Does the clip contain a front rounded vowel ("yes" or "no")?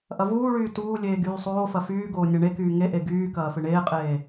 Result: yes